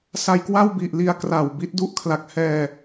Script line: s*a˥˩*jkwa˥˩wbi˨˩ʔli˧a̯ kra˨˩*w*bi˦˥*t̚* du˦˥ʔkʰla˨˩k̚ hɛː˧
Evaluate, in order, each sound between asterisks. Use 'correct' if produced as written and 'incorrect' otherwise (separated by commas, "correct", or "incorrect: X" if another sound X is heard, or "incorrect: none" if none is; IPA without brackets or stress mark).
incorrect: a˧, correct, correct